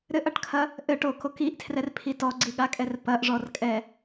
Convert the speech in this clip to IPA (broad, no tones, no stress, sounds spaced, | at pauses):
ɾ ɘ ʔ ɐ ʈ kʰ ɐ | ʔ ɘ ʈ o k o k i ʔ tʰ r ɛ r pʰ i t ɔ ɡ͡ǀ i ɠ a kʼ ɛ r p ɐ ʔ ʐ ɔ r kʼ ɛ